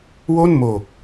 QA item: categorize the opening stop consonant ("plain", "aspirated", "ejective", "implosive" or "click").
plain